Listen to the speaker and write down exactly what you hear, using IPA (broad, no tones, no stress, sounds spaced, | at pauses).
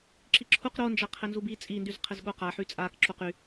ǁ i ǁʰ u q ɾ o n d͡ʒ a qʰ ɘ n z u b i t͡sʼ i n d y z qʰ ɘ z ɠ o q a ħ y t͡sʼ a k ǁ o q y